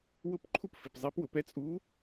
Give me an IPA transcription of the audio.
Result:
w ʊ˥˨ p ǃʰ u˥ p f i˨ p zˤ i˧˥ p w ʊ˨ p ɛ˧˥ t͡sʼ u˧˥

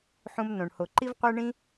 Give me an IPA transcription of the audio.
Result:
ħ ũ˧ m n õ˨ ɳ h o˨ ǃ i˦ v qʷ æ˦ ɳ ĩ˦

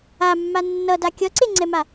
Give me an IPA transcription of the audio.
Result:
a mː a nː ʌ d a kʲ ʌ ǀ e ŋ͡ǀ ɛ m a

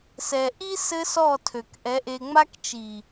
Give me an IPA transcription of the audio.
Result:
s ɛ˨ ʔ i˦ s ɘ˦ s ɔ˦˨ tʰ ø˨ k ʔ ɛ˨˦ ʔ e˧ ŋ͡m a˦ k t͡ʃ i˨

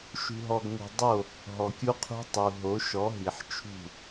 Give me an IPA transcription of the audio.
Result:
ʃ ṳ˨ ɦ ɔ˨ ɡ ŋʷ i̤˨ dˤ o˦˨ | ɦ ɔ˨ kʲ u˦ qʰ ṳ˦ tˤ u˨ ɦ o˨˦ ʃ ɔ˨˦ ɦ i˨ ħ t͡ʃʰ ṳ˦˨

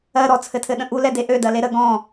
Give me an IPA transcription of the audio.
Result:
ɜ ɾ ɔ t͡sʰ ɘ tʰ ɘ ɗ ə̃ ʔ u l ɛ d e ʔ ø d ɜ l e ɾ ə ɡ ɔ̃

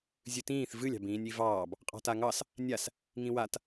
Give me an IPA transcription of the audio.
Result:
zʲ ɨ t ĩː θ v ɨ lʲ ɑ̤ b ĩː nʲ i v ɑː b | qʼ ɑ̤ t a ŋ ɑ s | nʲ a s | ŋ ĩ w a t

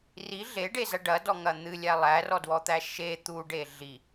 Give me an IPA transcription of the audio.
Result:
r i ɮ e ɖ e z ɐ ɖ ɐ d ɔ ŋ ɐ n̪ ɨ lʲ æ lˠ æ r ɔ d w ɔ t̪ æ ʃ e t̪ u ɖ e ɮ i

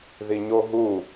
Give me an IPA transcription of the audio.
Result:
ð i ɲ o ɦ u

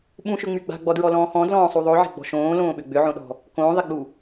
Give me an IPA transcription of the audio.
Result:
ɓ ũ ʃ ʏ ŋ͡m y ɡ͡b a̤ ɡ͡b ɔ d ɹ ɔ l ɔ̃ː x ɔ̃ d l ɔ̃ː sˤ u ðˤ o ʕ e̤ ɡ͡b ɔ̤ ʃ õː l õː ɓ ʏ ɡ͡b ʏ ʕ õ ɗ ɔ̤ | k õː ðˤ e ɡ͡b u

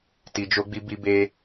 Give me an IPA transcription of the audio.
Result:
t i˧ d͡ʒ o˦ ɡ͡b i˦ b i˦ b e˦

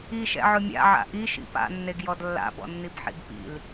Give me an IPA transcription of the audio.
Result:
i ʃ ɛ̰ ʕ ʊ mʲ a̰ ʕ a̰ ʔ i ʃ ḭ p a̰ nː e ɡ j ɔ d lː a̰ b ɔ̰ nː i b ħ ḭ b p ḭ l

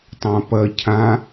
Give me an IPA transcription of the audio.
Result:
tˤ ã p ɐ cʰ ã

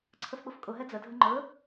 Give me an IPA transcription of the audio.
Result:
ǀʰ ə f ɓ ʊ f kʼ ʊ ɦ ɛ d͡z ə dʱ ə ŋ͡ǃ ɵ

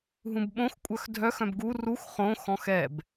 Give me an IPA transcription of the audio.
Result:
ɦ ũ b ɓ õ x kʷʼ œ x dʱ œ x œ̃ b ɡ u r u x χ õ x ɔ̃ x ɛ b

